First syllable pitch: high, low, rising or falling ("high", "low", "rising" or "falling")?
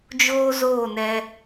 high